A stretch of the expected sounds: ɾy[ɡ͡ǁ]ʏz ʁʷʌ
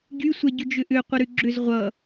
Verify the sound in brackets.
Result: correct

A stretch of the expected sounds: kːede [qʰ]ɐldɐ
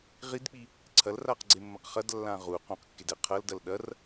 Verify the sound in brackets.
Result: correct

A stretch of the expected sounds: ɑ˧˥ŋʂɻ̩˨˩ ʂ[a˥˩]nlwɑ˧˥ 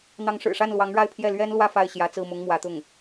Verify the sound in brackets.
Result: correct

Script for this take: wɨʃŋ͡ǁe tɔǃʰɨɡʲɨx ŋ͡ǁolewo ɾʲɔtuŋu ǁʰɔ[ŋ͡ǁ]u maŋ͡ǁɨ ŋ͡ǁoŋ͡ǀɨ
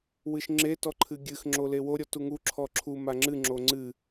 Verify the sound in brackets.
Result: incorrect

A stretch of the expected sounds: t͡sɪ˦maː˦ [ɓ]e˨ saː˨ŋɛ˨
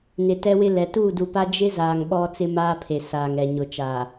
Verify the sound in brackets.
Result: incorrect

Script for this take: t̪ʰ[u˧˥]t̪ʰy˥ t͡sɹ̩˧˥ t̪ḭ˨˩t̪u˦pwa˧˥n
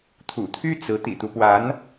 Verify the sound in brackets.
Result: incorrect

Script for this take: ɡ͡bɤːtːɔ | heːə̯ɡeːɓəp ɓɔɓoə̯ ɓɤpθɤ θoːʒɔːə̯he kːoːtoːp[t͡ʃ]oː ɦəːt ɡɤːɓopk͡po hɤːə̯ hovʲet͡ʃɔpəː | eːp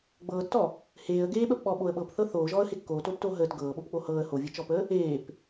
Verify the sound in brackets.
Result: incorrect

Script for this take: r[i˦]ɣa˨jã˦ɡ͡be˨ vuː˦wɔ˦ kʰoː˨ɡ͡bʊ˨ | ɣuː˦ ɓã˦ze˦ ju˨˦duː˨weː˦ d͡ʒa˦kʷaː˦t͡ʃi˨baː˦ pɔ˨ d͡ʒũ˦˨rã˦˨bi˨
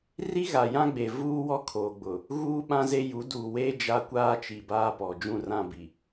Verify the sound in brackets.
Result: correct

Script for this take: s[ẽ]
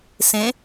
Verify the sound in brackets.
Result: correct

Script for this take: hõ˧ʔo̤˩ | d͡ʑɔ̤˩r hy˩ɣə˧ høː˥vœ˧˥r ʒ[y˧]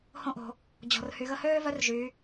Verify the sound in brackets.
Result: incorrect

